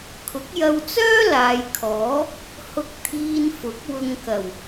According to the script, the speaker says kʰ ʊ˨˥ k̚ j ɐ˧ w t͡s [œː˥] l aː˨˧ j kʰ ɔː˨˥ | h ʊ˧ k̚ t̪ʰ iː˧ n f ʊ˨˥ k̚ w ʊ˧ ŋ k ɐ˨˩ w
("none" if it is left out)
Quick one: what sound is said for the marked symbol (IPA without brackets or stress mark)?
œː˥